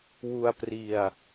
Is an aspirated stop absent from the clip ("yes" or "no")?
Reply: yes